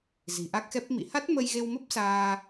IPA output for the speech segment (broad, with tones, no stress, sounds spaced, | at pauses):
z i̤˨˩ ʔ a˦˥ k̚ x ɛ˦˥ p̚ m ḭ˧˨ h a˦˥ t̚ m ə˧ j ɣ e˧ w m ə˦˥ p̚ s aː˧